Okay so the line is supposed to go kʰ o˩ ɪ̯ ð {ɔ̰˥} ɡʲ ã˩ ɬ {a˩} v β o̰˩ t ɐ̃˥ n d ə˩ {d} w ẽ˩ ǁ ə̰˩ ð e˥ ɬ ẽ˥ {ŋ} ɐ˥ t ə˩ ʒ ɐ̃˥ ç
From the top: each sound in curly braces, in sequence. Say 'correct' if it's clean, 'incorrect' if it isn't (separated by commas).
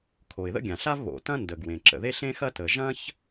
incorrect, incorrect, incorrect, incorrect